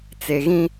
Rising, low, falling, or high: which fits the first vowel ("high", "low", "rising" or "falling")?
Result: low